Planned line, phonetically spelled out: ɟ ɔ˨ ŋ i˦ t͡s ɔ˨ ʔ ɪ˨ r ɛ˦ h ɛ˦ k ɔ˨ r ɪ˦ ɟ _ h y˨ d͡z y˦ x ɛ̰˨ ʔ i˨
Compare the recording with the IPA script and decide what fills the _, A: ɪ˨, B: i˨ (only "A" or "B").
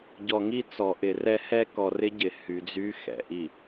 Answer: A